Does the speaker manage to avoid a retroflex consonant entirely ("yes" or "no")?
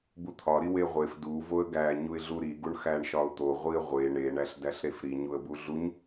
no